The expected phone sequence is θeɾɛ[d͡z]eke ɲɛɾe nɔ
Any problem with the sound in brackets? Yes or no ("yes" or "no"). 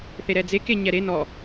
no